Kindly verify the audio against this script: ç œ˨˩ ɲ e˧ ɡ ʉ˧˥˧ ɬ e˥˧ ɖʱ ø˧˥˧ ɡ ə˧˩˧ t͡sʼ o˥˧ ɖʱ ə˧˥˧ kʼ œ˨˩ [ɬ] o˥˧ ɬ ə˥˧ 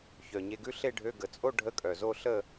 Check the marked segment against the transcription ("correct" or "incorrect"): incorrect